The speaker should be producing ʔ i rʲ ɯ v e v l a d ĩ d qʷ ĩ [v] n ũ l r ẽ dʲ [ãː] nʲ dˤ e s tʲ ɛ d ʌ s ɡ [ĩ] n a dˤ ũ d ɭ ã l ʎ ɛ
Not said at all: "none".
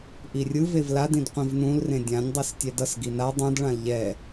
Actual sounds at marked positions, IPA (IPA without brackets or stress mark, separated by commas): v, ã, i